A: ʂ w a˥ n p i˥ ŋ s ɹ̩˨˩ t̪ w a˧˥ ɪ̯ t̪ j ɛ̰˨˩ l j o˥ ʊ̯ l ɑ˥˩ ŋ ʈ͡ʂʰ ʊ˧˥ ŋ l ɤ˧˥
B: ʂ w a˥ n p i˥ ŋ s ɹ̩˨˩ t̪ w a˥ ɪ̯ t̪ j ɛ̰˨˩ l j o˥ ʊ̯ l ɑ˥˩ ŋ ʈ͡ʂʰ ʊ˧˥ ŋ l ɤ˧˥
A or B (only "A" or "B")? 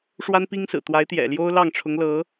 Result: A